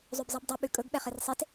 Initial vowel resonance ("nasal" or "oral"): oral